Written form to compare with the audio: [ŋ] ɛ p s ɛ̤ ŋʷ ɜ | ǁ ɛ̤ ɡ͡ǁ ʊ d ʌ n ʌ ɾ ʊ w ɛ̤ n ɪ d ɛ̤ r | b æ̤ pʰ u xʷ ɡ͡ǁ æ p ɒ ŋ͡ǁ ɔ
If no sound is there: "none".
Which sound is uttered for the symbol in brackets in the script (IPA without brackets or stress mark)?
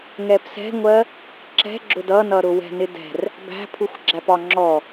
ŋ